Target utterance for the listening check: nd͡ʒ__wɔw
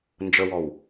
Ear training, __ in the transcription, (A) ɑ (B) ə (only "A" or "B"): B